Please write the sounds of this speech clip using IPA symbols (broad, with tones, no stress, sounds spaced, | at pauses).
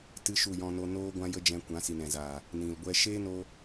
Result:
t ɨ˦ ʃ u˦˨ j ɔ̃˧ n o˧ n oː˦ ɡʷ ã˦ j ə˦ d͡ʒ ɛ̃˧ kʷ ã˨˦ s i˨ n ɛ̃˨ z aː˨ | n ĩ˨ l ɡʷ ɛ˦ ʃ eː˦ n o˧